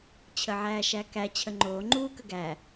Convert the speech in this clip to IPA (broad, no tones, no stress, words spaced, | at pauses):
t͡ɕʰəʕæːʃækæ t͡ɕʰəŋ͡ǃoː ŋ͡ǃuːkəɡæ